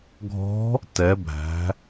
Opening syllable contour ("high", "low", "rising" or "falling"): rising